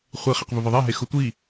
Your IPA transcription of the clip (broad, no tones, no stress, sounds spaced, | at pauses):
χʷ i χ ɛ q v ʊ v ɪ ðˤ ɛ ɦ e x ʊ tʷ i